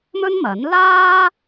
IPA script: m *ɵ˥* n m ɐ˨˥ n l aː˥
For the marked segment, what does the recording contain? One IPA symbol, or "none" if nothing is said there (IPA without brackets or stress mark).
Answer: ɵ˥